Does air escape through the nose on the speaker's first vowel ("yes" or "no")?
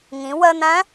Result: yes